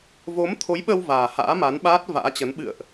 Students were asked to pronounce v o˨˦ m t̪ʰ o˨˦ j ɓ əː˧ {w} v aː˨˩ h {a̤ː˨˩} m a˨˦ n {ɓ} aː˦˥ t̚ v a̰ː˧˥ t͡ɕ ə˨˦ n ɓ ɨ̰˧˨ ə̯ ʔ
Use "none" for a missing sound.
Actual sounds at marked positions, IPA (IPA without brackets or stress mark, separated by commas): w, a̰ː˧˥, ɓ